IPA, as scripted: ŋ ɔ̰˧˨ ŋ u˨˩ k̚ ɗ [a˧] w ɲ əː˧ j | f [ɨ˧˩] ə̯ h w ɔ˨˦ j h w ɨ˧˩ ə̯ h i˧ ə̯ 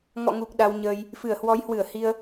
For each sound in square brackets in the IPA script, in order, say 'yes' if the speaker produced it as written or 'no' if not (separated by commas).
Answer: yes, yes